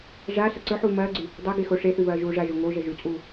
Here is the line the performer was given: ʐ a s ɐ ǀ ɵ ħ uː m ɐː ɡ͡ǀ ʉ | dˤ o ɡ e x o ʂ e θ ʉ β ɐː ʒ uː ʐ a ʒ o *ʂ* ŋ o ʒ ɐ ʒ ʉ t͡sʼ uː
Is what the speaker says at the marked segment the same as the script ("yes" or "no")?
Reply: no